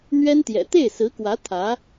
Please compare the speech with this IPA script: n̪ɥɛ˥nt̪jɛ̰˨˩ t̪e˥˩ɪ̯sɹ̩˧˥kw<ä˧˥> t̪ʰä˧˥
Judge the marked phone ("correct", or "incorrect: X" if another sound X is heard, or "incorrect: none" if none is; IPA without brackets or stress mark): correct